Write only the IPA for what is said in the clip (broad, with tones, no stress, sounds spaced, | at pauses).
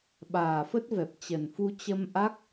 ɓ aː˨˩ f ə˦˥ t̚ v ɛ˨˩ p̚ t͡ɕ ə˨˩ n f u˧ t͡ɕ ə˧ m ʔ a˦˥ k̚